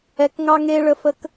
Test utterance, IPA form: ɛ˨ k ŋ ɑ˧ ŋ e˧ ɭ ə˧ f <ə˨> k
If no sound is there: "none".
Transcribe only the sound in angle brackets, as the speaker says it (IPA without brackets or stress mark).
ə˧